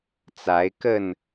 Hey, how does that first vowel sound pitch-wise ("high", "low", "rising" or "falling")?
rising